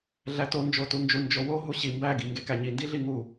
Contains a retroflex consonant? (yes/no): no